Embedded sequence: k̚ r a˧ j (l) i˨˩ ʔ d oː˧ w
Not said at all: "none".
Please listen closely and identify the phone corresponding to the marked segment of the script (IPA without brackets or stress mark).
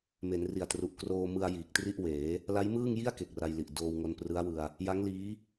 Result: l